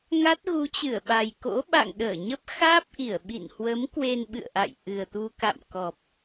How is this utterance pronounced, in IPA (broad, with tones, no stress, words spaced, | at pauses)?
ŋa˦˥t̚ɣu˨˦t͡ɕɨ˧˩ə̯ɓa˨˩j ko̰˧˥ɓa̰˧˨ŋ ɗəː˧˩ɲə˦˥p̚ xaː˦˥p̚ʔi˧˩ə̯ ɓḭ˧˨n hwə˨˦m kwe˧n ɓɨ̰˧˨ə̯ʔa̰˧˨jʔɨ˨˩ə̯t̪u˧ ka̰˧˨m kɔ˨˩p̚